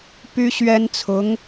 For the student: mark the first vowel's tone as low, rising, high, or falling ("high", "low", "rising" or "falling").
high